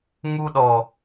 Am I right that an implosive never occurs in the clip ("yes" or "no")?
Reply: no